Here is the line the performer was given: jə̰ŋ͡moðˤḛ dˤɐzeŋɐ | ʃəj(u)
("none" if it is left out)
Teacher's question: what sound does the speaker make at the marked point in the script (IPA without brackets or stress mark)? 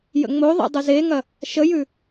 ʉ